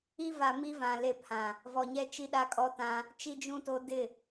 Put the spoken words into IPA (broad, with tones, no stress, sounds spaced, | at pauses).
i˦ v a˨ m i˦ v ã˨ l e˦˨ pʰ ã˨ | v ɔ˨ ɲ ɛ˦ t͡ʃ i˦ ɗ a˦ kʼ ɔ˦ t ã˦ | t͡ʃ i˦ d͡ʒ ũ˦ t o˦ d ɪ˦˨